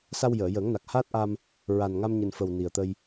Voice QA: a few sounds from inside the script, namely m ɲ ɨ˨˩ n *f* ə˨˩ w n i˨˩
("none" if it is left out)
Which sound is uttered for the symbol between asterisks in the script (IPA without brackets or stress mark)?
f